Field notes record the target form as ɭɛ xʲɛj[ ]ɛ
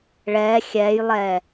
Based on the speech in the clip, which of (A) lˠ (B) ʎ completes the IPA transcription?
A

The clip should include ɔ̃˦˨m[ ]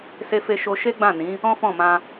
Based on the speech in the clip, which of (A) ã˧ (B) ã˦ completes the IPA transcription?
A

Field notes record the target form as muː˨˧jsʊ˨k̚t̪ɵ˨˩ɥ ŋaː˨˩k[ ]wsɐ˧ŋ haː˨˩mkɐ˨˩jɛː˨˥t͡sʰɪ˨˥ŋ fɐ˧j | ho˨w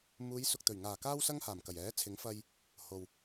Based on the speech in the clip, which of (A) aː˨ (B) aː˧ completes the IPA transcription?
B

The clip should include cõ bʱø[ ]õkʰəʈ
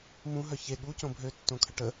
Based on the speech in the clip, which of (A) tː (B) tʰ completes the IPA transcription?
A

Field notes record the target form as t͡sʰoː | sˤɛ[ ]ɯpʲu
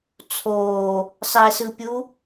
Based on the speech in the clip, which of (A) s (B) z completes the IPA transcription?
A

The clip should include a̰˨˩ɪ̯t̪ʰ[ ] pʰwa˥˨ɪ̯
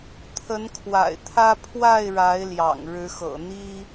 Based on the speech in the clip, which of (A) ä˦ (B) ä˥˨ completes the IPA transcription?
A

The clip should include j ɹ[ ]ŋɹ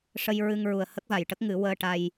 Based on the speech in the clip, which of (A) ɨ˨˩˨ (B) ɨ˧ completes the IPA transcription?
B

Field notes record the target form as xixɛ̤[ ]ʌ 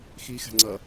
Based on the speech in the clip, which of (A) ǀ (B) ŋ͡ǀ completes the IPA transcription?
B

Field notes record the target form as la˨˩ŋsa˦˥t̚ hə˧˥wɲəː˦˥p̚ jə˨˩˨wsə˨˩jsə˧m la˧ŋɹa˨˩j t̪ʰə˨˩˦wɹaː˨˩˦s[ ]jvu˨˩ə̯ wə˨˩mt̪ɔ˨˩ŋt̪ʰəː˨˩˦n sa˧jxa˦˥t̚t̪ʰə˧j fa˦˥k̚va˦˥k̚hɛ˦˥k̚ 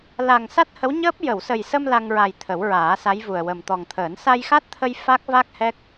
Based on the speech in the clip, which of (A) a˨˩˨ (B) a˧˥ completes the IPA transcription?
B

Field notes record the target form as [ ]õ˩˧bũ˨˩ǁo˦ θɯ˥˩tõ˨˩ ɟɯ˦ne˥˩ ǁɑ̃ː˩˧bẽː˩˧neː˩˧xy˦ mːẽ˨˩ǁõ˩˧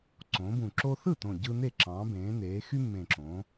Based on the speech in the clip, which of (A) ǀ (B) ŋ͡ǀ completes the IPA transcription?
A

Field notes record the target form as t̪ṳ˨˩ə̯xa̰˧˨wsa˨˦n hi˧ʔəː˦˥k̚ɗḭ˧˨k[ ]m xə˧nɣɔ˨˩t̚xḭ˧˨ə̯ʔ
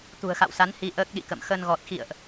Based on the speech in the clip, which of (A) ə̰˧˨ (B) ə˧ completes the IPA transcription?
A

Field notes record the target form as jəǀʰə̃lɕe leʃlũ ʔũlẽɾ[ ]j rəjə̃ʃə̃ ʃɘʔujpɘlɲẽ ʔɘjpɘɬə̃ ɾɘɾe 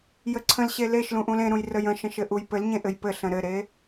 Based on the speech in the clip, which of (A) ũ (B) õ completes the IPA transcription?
A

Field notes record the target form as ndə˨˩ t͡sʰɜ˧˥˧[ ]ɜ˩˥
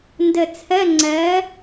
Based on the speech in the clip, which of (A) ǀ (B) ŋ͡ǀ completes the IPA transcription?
B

